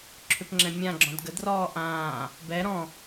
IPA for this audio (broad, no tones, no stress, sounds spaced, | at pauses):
ǁʰ ʏ p ŋ͡ǁ ɛ̃ mʲ ã ɡ͡ǁ ɔ̃ d ɡ ə d r ɔː ʔ ãː | b ɛ ɾ ɔ̃